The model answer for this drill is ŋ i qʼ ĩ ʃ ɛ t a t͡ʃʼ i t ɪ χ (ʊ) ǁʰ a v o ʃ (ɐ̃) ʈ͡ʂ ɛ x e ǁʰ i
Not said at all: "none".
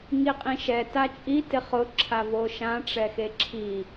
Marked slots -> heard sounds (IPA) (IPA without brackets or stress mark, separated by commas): ʊ, ã